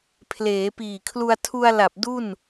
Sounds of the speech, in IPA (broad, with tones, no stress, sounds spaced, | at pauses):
pʰ l eː˩˦ p iː˨˩ kʰ l u˧ a̯ tʰ u˧ a̯ l a˨˩ p̚ d u˥˩ n